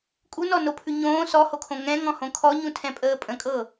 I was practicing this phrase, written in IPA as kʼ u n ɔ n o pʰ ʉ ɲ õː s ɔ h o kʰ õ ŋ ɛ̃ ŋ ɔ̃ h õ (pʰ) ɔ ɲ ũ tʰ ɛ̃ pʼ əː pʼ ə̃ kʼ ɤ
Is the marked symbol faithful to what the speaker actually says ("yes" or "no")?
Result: no